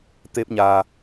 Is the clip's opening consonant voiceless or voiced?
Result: voiceless